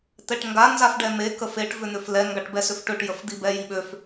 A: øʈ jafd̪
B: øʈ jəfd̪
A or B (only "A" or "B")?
B